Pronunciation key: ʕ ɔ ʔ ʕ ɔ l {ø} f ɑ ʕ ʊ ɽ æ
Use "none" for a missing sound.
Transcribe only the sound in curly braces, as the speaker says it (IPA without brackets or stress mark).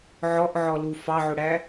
u